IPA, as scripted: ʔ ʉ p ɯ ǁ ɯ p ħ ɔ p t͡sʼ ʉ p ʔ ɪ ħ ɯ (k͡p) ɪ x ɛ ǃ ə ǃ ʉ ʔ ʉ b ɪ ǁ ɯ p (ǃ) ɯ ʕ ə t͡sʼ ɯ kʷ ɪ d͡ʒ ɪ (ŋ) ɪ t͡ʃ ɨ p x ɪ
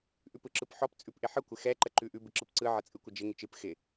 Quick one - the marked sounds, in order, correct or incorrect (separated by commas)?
incorrect, incorrect, correct